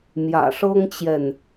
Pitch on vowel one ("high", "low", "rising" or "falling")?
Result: low